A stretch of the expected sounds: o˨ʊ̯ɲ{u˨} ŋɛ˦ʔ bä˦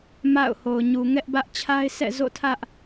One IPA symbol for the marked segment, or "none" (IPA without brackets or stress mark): u˨